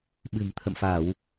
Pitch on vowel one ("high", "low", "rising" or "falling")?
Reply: low